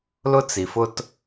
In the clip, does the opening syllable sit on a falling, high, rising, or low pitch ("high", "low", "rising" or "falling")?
high